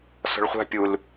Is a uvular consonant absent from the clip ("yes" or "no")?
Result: no